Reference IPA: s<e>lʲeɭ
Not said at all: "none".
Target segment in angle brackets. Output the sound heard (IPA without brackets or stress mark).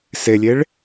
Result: e